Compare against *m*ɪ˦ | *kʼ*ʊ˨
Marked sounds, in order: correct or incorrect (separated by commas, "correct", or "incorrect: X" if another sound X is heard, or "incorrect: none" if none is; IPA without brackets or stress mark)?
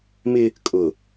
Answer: correct, correct